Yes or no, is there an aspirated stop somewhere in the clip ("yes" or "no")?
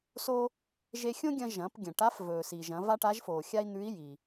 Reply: no